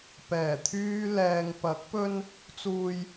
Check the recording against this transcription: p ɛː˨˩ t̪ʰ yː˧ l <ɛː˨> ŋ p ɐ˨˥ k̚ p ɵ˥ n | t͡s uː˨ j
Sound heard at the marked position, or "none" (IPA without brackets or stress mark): ɛː˨